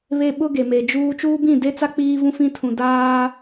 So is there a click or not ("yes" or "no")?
no